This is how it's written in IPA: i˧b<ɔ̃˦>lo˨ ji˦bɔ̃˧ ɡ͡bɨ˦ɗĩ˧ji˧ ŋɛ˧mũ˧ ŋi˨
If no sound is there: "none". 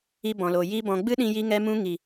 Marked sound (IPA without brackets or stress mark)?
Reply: ɔ̃˨